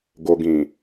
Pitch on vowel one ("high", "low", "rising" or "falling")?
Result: low